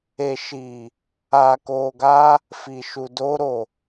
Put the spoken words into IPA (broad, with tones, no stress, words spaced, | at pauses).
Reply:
e˨ʃiː˨ | aː˨koː˨ɡaː˧ | fi˨ʃu˨ doː˧ɾoː˨